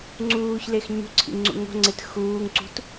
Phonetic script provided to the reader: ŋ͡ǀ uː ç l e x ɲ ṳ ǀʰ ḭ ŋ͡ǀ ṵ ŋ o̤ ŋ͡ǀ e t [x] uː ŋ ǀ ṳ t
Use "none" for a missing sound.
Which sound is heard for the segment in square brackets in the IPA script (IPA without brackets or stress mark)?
x